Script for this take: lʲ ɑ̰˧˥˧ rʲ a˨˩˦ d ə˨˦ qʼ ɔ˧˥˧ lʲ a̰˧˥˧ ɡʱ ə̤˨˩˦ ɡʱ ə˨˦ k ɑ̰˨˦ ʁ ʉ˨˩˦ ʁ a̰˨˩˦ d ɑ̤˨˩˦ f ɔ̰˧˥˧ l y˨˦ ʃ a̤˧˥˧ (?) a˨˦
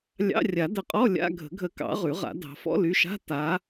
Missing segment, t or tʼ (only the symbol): t